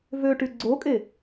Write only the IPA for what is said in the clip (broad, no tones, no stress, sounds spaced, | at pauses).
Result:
v ø ʈ y ɡ͡ǀ o kʼ e